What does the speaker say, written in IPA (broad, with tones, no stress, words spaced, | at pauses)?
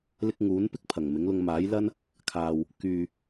lɪ˥k̚ ŋuː˨˥npɪ˥k̚ pʰɐ˨˩ŋmɪ˨˥ŋlʊ˧ŋ maː˨˥jlɐ˥n | kʰaː˨w | kyː˨